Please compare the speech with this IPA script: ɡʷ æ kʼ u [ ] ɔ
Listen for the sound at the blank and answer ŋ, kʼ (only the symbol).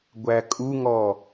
ŋ